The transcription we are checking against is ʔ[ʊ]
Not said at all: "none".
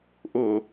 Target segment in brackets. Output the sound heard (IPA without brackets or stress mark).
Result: ʊ